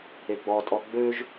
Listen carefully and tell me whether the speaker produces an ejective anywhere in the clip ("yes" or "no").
yes